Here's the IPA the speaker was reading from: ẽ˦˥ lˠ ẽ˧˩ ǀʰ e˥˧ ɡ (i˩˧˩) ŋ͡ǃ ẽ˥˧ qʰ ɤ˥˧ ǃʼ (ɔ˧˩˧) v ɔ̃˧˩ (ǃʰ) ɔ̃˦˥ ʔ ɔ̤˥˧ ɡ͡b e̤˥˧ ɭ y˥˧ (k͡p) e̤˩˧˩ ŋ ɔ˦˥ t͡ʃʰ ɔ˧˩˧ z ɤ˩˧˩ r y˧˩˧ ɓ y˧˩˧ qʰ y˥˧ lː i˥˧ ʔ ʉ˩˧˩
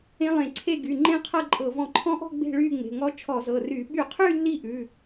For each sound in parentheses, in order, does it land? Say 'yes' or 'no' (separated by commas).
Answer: no, no, yes, no